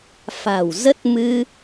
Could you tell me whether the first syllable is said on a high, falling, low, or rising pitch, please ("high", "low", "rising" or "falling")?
low